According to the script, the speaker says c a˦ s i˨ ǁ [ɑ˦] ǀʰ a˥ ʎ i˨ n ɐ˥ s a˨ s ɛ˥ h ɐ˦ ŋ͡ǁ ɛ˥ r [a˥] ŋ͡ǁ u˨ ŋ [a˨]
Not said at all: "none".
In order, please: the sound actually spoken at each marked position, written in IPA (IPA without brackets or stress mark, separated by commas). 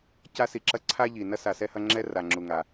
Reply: ɐ˦, a˨, a˨